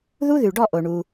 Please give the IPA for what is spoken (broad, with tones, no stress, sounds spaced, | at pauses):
ð u˦ ð ʉ˨ ɖ ɔ˦˨ ʔ o˨ ɳ u˧